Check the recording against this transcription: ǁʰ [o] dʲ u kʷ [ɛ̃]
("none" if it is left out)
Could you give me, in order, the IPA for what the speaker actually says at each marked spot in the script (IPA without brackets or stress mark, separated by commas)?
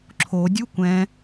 o, ɛ̃